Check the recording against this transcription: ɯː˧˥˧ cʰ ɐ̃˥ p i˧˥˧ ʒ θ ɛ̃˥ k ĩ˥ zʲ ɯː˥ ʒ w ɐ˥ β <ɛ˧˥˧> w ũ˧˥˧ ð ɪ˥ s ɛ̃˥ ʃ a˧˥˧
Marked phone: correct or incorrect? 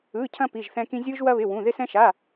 incorrect